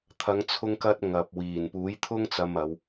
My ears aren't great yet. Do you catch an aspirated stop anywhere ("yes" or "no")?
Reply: yes